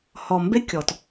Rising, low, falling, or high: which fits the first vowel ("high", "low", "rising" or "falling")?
low